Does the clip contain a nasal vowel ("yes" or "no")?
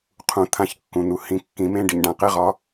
yes